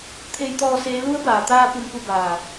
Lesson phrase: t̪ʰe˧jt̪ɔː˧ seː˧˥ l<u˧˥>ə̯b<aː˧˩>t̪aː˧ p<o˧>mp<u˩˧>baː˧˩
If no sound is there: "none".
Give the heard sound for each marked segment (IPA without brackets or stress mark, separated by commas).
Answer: u˧˥, aː˩, u˧, u˥˨